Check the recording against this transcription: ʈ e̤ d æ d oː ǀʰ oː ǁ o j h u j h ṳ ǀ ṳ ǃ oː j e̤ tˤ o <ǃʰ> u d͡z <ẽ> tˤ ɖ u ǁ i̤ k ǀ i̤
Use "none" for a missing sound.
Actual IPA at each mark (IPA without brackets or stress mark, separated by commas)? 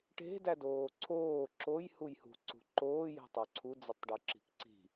ǀʰ, e